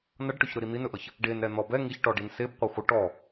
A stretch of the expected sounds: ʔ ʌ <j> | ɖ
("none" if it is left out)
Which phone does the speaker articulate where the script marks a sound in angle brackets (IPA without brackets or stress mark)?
ç